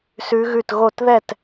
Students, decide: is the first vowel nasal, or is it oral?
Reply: oral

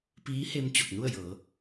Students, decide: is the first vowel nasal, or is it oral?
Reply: oral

